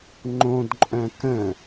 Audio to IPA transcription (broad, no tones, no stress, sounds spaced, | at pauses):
ŋ͡ǃ õ d ǃʼ œ̃ k ə̃